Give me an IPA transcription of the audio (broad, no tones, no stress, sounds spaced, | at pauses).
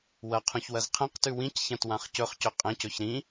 w ɐ qʰ ũ ç w ɐ z qʰ ẽ q t ʉ w ĩ c ç ã t w ã χ c ɵ χ c ɵ qʼ ẽ c ɵ ç ɾ ĩ